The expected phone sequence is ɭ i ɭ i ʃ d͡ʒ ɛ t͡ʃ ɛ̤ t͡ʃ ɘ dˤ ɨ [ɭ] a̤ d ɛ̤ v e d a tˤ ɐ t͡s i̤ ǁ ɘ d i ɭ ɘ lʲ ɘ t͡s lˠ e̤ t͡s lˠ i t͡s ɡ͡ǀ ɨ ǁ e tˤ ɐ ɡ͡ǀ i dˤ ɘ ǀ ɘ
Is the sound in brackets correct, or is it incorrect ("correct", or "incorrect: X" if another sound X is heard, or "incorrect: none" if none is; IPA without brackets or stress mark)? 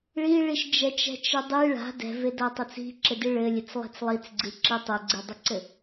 correct